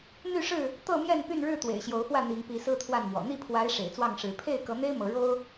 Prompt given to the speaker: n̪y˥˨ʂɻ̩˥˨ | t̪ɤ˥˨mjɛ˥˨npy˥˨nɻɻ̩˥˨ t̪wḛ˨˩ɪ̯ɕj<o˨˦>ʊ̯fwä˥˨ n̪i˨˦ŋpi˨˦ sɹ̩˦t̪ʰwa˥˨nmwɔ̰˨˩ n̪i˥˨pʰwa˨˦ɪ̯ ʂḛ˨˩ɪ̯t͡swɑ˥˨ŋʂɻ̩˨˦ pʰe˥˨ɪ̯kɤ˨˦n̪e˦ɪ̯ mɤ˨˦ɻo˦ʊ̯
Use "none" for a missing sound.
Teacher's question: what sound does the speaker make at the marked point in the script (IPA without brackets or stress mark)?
o˨˦